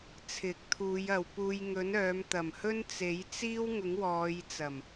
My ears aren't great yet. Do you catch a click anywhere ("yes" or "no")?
no